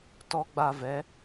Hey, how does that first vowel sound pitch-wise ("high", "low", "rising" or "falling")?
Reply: high